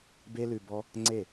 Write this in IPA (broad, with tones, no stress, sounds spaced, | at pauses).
b e˦ l ʉ˧ b ɔ˦ | ŋ͡ǀ e˦˨